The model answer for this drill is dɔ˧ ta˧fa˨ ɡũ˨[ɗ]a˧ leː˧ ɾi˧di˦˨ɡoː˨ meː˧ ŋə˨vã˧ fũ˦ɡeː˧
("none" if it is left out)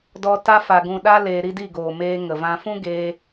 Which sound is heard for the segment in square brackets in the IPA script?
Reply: ɗ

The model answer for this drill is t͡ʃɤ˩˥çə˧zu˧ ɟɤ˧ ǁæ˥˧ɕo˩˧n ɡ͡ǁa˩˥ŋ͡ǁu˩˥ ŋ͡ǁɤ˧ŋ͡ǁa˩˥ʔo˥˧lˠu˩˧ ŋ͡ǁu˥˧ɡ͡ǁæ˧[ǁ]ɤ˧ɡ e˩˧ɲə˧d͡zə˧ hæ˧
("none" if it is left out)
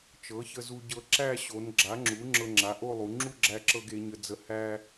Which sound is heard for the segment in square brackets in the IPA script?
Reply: ǁ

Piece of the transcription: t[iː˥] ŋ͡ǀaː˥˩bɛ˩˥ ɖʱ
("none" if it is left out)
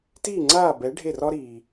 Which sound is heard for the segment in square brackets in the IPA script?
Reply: iː˥˩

